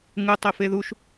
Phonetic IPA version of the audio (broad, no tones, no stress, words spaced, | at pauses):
ŋɯ tˤefeðuʃ